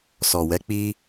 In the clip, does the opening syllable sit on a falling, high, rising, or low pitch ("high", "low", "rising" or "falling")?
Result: low